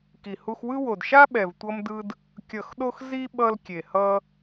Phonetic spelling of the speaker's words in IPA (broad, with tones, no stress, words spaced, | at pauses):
ki˨hu˧xwɯ˦ wo˨dʃa˦ɓɛ˨v tʷʌ˦mdɯ˦d | kʲʌ˨xɗo˧x zi˦ɓʌ˧l kʲe˨hʌ˦